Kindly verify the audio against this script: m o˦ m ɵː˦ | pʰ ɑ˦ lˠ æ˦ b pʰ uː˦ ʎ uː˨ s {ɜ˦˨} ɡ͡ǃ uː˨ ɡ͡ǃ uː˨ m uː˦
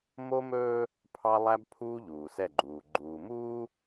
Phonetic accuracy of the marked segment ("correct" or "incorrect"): incorrect